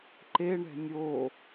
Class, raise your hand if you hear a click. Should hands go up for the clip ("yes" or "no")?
yes